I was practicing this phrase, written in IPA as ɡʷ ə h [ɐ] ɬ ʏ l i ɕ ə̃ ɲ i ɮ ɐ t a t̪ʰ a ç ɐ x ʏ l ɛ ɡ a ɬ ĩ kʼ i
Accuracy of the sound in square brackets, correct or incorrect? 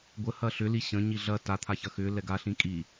correct